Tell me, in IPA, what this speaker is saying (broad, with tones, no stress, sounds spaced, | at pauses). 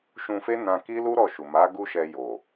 ʃ ũ˧ f e˦ n ã˧ k i˦ l u˦ ɾ ɔ˦˨ ʃ u˨ m a˨˦ ɡ u˦ ʃ ɛ˧ j o˨